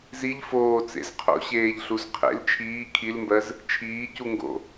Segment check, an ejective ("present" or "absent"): absent